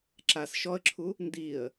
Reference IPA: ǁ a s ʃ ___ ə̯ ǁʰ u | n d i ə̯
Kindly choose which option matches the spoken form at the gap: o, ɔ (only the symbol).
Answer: ɔ